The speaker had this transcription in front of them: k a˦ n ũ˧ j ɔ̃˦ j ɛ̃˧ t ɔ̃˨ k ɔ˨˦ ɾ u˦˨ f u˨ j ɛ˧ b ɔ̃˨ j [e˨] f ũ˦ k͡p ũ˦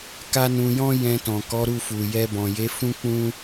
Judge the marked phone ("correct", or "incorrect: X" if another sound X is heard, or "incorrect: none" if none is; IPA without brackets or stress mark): incorrect: e˨˦